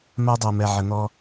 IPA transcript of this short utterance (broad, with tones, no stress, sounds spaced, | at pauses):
m a˦ dˤ a˨ m ɛ˨ ʕ ə˨ n̪ ɔ˧